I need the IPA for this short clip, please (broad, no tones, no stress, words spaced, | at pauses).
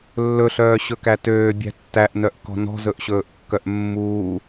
lːɵɬœːɕɵkæ tøːbʲæ̤ tːæʔnœʔkɔ̤ nɔ̤zɵʔɕɵːʔkːœʔ mːuː